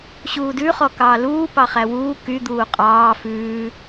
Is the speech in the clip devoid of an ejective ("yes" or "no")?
no